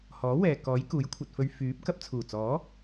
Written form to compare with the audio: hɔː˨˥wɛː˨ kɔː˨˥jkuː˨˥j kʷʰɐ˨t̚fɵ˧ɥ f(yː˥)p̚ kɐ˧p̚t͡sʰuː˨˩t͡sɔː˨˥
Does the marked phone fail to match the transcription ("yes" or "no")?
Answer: yes